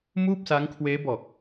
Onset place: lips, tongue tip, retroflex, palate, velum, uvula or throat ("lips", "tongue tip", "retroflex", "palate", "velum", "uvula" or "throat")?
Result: lips